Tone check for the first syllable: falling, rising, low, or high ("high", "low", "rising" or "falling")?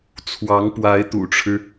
rising